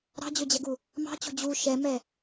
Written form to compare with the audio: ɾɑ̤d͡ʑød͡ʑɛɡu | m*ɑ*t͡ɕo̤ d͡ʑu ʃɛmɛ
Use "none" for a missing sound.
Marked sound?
ɑ̤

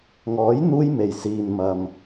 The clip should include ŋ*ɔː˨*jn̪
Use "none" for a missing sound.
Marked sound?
ɔː˨˥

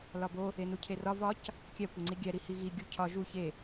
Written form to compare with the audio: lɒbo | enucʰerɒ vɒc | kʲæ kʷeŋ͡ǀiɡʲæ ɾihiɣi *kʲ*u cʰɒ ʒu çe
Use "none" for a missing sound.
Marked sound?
ɡʲ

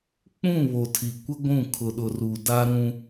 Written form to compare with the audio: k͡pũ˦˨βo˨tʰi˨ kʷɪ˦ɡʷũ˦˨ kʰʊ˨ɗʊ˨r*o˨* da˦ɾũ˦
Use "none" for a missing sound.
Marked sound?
u˨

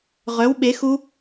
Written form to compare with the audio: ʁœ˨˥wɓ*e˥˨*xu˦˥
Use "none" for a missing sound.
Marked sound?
e˨˥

